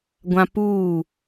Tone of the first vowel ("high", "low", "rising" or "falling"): high